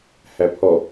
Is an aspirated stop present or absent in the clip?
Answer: present